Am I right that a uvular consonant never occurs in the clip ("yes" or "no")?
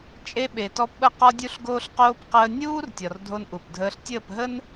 no